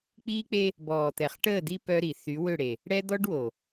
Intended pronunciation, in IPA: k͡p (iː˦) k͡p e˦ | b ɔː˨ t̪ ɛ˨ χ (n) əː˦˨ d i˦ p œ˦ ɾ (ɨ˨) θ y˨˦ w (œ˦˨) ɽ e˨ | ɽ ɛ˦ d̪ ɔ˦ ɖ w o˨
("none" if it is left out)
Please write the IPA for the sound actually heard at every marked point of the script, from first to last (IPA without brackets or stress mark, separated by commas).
iː˦, ʈ, i˨, ø˦˨